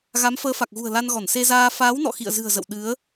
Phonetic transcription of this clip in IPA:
ɣ a˨˦ m f əː˨˦ f a˨˩ k̚ ɣ ṳ˨˩ ə̯ l a˧ n ɣ ɔ˧˩ n s e˧ z aː˧ f aː˨˦ w n ɔ̰˧˨ x ḭ˧˨ ə̯ z ɨ̤˨˩ ə̯ z ə̰˧˨ w ɗ ɨ˨˦ ə̯

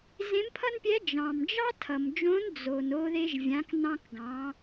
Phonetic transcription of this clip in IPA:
z ẽ˧˥ m pʰ ʌ˥ n pʲ ɛ˧˥ d͡ʒ ɑ̃˩ m d͡ʒ ɑ˥ tʰ ʌ˩ m d͡ʒ õ˧˥ n d͡z o˩ n o˧ ð e˧ ʒ vʲ ã˩˧ k n ɑ̃˧ k ɡ ɑ̃˩˧

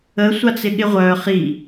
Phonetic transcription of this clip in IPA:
ə sʷ a t͡s ɪ ɠ ɪ ʁʷ œ χ i

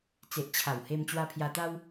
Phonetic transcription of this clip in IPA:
t͡s e˨ ʔ t͡ɕʰ a˨˩ w h e˧ m t͡ɕ w a˧ pʰ j a˧ t̪ a˦ w

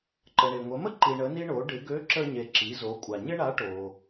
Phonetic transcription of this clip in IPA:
ǃ ə˩ ɳ e˩ ŋʷ ə˩˧ m ə˥ ǃ i˩ ɳ ə˩˧ n i˧ ɳ o˩˧ ɖ ɪ˩˧ ɡ ø˧˥ ǁ ə˧ ɲ e˩ ǁ i˩˧ z o˩˧ kʷʼ a˩ ɲ ɪ˥ ɳ a˧˥ ʈ o˩

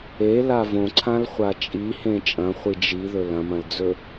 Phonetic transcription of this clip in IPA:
e l a v õ ǀʰ ã l χʷ a t͡ʃʼ i h ẽ t͡ʃʼ ɐ̃ χʷ i d͡ʒ i ð ɵ l ɐ̃ m ɐ̃ l d͡z ɵ

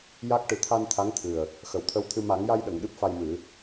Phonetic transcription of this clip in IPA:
j a˦˥ k̚ ʈ ɨ˨˩ t̪ʰ a˧ n t̪ʰ a˧˥ ŋ t̪ʰ ɨ˨˩ ə̯ | x ə˨˩ w t̪ʰ ə˧ w t̪ʰ ɨ˧ m a˨˩˦ ŋ j a˧ j ɗ ə˨˩˨ ŋ ɗ ɨ˦˥ p̚ f a˧ j m ɨ˨˩˦

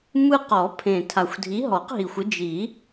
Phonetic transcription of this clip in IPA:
m ɯ˦ q ɔ˨˩˦ pʰ ẽ˨˩ tʰ a˨˩ xʷ dʱ i˨˦ ɦ ɔ˨˩˦ q ɦ i˨˩ xʷ ɯ˨˦ d͡ʒ i˨˩˦

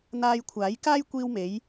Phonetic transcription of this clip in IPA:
n̪ aː˧ j kʷʰ aː˨˥ j k aː˥ j kʷ iː˧ w m e˨˧ j

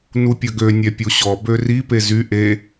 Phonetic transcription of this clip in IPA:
n u pʲ ə ɡ ø nʲ ɛ pʲ o ɕ ɔ b ø r i p e z y ʔ e

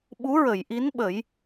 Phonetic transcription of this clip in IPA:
ɓ u˧˥ ɹ ə˨˩˨ j ʔ i˧˥ n ɓ ə˨˩˦ j

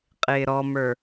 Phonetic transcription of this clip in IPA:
qʼ ɪː ɾ ɔ m ə˞

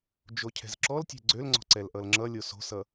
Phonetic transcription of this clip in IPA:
d͡ʒ o cʰ ɛ̤ z ǁ ɔ l tʲ ɛ̤ ɡ͡ǀ ø l ŋ͡ǀ ɔ̤ ǀ ɛ l ʔ ʌ l ŋ͡ǁ ʌ lʲ o s o̤ s ʌ

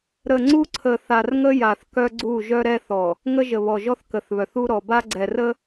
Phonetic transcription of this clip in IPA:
ɾ ə˨ ŋ͡ǀ u˦ ǀʰ ə˨ θ a˨ r ŋ ə˦ j a˨ θ k œ˦ ɡ͡ǀ u˦˨ ʒ œ˦ ɾ ɛ˦ θ ɔ˨ | ŋ ə˦ ʒ ə˨ β ɔ˨ ʒ ɔ˦ θ k ə˨ θ β œ˨ θ u˦ ɾ ɔ˨ b a˦ ɡ͡ǀ ɛ˨ r ə˦

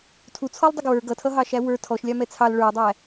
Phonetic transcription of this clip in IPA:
tʰ u t͡sʰ ɔ lˠ dˤ ɪ ɡ w ə˞ ɡ ʌ tʰ ʌ ɦ ɑ ʃ æ w ə˞ tʰ ɔ ʃ lʲ ɑ m ɛ t͡sʰ ɑ l ɭ ə˞ dˤ æ

